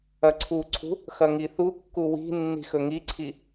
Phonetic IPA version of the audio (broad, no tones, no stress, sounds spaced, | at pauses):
ɐ ǀʰ u ǀʰ ṳ | x ɐ ŋ i θ u kː u w i̤ nː i̤ x ɵ ŋ i ǀʰ i